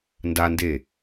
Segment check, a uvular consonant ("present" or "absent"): absent